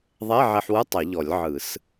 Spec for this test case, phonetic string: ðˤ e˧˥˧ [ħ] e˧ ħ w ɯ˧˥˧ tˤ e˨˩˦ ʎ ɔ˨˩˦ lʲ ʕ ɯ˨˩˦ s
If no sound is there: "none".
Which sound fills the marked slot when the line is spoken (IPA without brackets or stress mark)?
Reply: ʕ